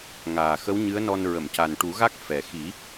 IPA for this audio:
ŋ aː˨˩ x ə˧˥ w ɲ ɨ˧˥ ə̯ n ɔ˧ n ɹ ə˨˩˨ m c a˨˩ n ʈ u˨˩˦ ɣ a˦˥ k̚ f ɛ˨˩ x i˨˩˦

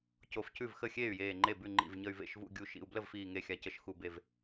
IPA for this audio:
c o˧˩ f c ʉ˥˩ v x ə˥˩ xʲ eː˥˩ y̯ j eː˧˩ ŋ͡ǃ e˥˩ b ʉ˥˩ ŋ͡ǃ ḭ˧˩ v ɲ ə˧˩ y̯ v ḛ˥˩ ʃ v ṵ˥˩ ɡʲ u˧˩ ʃ ḭ˧˩ u̯ b l ə˥˩ v f iː˧˩ ŋ e˧˩ xʲ a˧˩ c ə˧˩ ʃ x u˧˩ b e˧˩ v

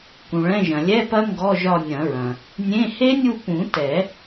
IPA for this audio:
k ũ˩ ɭ ɛ̃˧˥˧ ʒ ɐ̃˩ lʲ ɛ˧˥˧ p ɐ˦˥ ŋ ɡ ɔ˧˥˧ ʒ ɒ˦˨ nʲ ɐ̃˨˩˦ ɹ ɐ̃˩ | nʲ ẽ˧˥˧ h e˦˥ nʲ u˦˨ p ũ˨˩˦ t ɛ˨˩˦

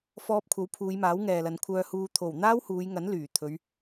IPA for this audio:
f ɔː˧ p̚ kʷʰ ɐ˨˥ w pʰ uː˨˧ j m aː˨˥ w ŋ ɛː˨ l ɐ˨˧ n kʷʰ œː˧ h uː˧ t̪ʰ o˨˩ w n̪ aː˥ w h uː˨˧ j ŋ ɐ˨˥ n l yː˨˩ t̪ʰ ɵ˨˧ ɥ

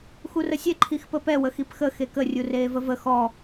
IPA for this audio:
x u r ə sʲ ɛ ǃʰ i x p ə p ɛ w ə x i p x ə x e k ə rʲ u r eː v ə v ə x ɔ

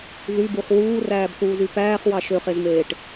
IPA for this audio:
ð y b u χ w uː r æː b θ uː z y p æː χ w ɑ ʃ ø χ e z m eː ʈ

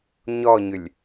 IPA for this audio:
ɲ ɔ ɲ ʏ lʲ

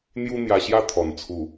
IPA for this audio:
n̪ j u˦ n̪ j a˧ ɕ j a˦ t̪ʰ ɔ˨˩ n t͡sʰ u˨˩

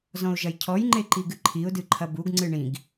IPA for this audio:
z ɔ̃ ʊ̯ ʒ ɐ j cʰ ɔ j ŋ͡ǃ e ǃ i ɡ ɨ ǃʰ i ʊ̯ d ɨ ǃʰ ɐ b u ɡ ŋ͡ǀ ɨ ɳ ĩ ɡ

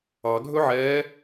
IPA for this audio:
ɑ ɡʱ ɵ ʕ ɛː

